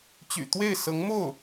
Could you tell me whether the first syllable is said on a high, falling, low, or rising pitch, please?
low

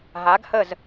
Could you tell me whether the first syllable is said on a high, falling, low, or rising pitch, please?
rising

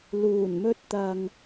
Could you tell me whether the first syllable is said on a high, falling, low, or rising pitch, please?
low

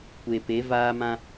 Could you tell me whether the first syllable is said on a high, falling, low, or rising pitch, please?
low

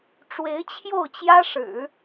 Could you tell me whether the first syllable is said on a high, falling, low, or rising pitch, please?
rising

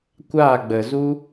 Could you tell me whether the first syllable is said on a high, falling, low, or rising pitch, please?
falling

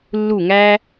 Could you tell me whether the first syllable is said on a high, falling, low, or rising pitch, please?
falling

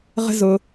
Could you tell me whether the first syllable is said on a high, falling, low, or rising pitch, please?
high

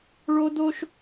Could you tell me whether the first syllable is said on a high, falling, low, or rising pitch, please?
high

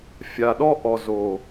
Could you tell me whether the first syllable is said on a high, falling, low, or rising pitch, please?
low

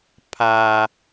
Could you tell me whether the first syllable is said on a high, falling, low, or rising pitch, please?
low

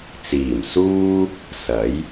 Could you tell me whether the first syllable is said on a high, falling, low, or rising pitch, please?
low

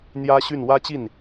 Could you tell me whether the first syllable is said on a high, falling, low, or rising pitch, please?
high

